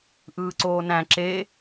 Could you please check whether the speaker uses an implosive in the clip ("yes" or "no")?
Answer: no